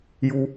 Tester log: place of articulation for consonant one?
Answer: palatal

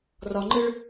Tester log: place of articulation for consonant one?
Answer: alveolar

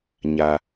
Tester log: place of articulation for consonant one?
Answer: palatal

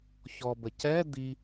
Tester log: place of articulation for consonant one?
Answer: palatal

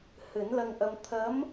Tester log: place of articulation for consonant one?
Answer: glottal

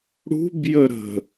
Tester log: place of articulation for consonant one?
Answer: retroflex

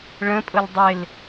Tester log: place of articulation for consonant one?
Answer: retroflex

